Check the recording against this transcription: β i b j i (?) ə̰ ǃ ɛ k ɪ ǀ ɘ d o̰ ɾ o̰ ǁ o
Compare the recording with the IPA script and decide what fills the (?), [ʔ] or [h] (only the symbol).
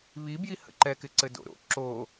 h